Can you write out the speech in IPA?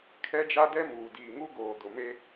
kʰ ɛ˦ d͡ʒ a˦ d ɛ˦ m uː˨ d iː˨ ŋ u˦ ɡ oː˨ d ʊ˨ m e˦

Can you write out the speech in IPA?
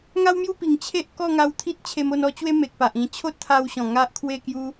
ŋ a˦ w m j u˥˧ p i˨˩ ŋ t͡ɕʰ e˦ ʔ k ɔ˥˧ ŋ a˧ w t̪ʰ i˦ t̚ t͡ɕʰ e˧ m o˥˧ n ɔ˦ t͡ɕ w e˦ m e˨ k̚ p a˨ ʔ ĩ˧ t͡ɕʰ o˦ t̚ t̪ʰ a˧ w ɕ ɔ̃˨˩ ŋ a˦ ʔ kʰ w e˥˧ k j u˦

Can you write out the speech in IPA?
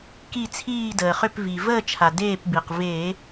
k i˥˨ t͡sʰ iː˥˨ d əː˩ χ ʏ˥˨ p v i˩ v əː˥˨ t͡ʃʰ a˩ d eː˥˨ p b i˩ q v e˧˩˧

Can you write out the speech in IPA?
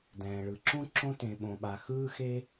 d ɛ̃ː˩ ɭ ɯ˩ ǁ ũ˥ ǁ õ˥ t ẽ˩ ɓ õ˩ ɓ a˩ x ɯː˥ x e˥

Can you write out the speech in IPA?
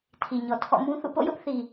tʰ i˨ ɲ ɔ˨ tʰ ɔ̰˦˨ m ũ˦ θ ṵ˦˨ p o̰˦˨ j ʊ˦ ʔ θ i˨

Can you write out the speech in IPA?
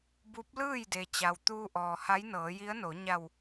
b u˧˥ p̚ l ɯː˥˨ j d e˩ t͡ɕ a˩ w t̪ uː˧ ʔ ɔː˩ h a˧˥ j n ɤː˩˧ j i˧˥ ə̯ n o˩˧ ɲ a˧˩ w

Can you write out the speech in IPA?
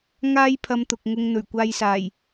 ŋ aː˥ j pʰ ɐ˧ m t̪ ʊ˨ k̚ ŋ ʊ˧ ŋ n̪ ɵ˨˩ ɥ kʷ aː˧ j s aː˨˩ j

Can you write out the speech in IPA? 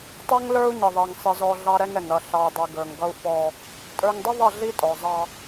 tˤ ɛ˦ ŋ l ə˞˦ u̯ ɲ ɪ˨ ðˤ i˨ ŋ sˤ ɪ˨ z ɔ˨ ɮ ɑ˦ ɾ ɛ˦ ŋ ɛ˨ ŋ ɾ ʌ˨ ɬ ɑ˨ i̯ dˤ i˨ ɡ ə˞˨ ŋ ɡ ʌ˦ u̯ f ɔ˦ | tʼ ə˞˨ ŋ dˤ ɪ˦ ðˤ ʌ˦˨ ɮ i˦ tʼ ɔ˨ zˤ ɑ˦

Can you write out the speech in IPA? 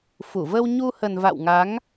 f u˧˩ v ə˧ w ɲ u˧ h ə˨˩ n v a̰˧˨ w ŋ a˨˦ ŋ

